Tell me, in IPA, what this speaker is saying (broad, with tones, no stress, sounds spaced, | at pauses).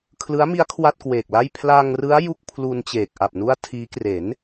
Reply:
kʰ l ɯ˦˥ a̯ m i˦˥ a̯ kʰ w a˥˩ t̚ k w eː˨˩ k̚ l a˥˩ j pʰ l aː˧ ŋ r ɯ˦˥ a̯ j u˥˩ k̚ pʰ l u˧ n t͡ɕ eː˨˩ k̚ ʔ a˨˩ p̚ n u˦˥ a̯ tʰ iː˦˥ k r e˩˦ n